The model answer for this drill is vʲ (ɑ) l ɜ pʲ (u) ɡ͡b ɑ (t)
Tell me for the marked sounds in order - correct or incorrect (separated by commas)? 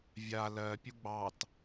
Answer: incorrect, correct, correct